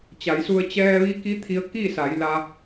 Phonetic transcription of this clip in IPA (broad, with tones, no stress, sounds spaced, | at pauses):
t͡ɕ a˩˧ j s u˧ ə̯ t͡ɕ ɛː˧ ʋ i˧˥ k i˧˥ t̪ʰ i˧ ə̯ k i˥˨ s a˩˧ j l a˧